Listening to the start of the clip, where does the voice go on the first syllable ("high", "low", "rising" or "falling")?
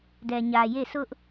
low